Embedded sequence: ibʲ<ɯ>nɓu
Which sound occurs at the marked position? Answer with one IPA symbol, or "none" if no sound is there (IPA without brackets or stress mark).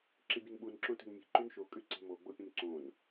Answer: ɯ